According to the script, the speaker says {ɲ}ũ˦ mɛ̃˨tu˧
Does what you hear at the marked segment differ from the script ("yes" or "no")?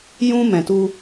yes